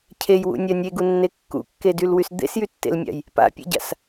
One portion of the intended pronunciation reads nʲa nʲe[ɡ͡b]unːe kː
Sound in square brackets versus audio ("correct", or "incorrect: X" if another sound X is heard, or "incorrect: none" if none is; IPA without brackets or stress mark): incorrect: ɡ